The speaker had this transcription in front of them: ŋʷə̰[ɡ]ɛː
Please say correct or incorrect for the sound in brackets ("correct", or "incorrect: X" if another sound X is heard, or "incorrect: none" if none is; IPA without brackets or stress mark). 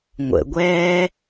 incorrect: ɡʷ